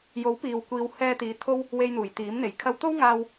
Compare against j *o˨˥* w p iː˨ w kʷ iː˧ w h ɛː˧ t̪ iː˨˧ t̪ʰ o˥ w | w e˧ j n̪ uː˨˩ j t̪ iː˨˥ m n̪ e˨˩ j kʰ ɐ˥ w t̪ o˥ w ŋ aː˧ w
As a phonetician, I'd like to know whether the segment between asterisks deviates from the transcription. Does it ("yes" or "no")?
no